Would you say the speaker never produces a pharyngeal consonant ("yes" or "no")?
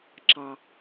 yes